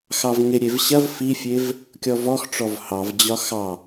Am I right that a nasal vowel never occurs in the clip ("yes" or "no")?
yes